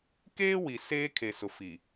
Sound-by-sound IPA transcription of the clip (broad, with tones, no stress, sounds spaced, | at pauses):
k eː˦ w i˨ s eː˦ kʰ e˨ s ʊ˨ f i˨